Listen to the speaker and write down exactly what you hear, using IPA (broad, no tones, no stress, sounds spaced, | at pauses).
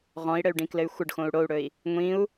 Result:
ʁ ɔ̃ i̯ ɽ ɘ y̯ ɖ ĩ k l ɘ y̯ xʷ ə ɖ x õ u̯ ɽ o u̯ ɽ ɵ i̯ | ŋʷ ĩ u̯